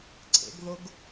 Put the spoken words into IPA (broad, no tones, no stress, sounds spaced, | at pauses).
ǀʰ ḛ ɡ ð ʊ ɡ